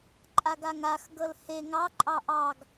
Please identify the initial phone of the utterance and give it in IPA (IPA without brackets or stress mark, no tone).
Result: ǃʼ